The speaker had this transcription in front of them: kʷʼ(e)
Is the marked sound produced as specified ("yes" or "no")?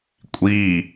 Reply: no